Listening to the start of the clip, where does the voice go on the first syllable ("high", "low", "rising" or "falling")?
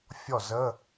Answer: falling